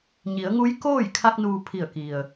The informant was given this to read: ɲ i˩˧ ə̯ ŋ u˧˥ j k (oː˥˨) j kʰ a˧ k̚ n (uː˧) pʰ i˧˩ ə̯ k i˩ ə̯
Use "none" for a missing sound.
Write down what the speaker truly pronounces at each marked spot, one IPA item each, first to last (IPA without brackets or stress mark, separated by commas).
oː˥˨, uː˧